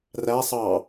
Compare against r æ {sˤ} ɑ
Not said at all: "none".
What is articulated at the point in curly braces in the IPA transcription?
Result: sˤ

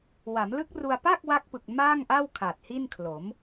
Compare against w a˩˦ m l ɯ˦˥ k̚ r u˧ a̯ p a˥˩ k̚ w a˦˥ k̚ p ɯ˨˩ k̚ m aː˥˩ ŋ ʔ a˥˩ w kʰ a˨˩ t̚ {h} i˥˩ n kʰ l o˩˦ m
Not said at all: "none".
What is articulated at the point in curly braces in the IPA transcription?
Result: h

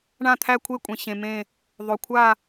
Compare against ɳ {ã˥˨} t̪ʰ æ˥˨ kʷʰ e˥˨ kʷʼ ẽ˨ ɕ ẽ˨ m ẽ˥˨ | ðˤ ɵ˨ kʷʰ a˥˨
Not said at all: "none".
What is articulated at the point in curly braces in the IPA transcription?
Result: ã˥˨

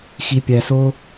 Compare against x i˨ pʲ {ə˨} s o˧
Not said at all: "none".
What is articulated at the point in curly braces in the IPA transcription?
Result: æ˨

